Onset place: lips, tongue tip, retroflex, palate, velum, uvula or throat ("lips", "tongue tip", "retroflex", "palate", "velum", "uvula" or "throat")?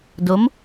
tongue tip